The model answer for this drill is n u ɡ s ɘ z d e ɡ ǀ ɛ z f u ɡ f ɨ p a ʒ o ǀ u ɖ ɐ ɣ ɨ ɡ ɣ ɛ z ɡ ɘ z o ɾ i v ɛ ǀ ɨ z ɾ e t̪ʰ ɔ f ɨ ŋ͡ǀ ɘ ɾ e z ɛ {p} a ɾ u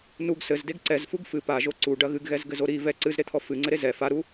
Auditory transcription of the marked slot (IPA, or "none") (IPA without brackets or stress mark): f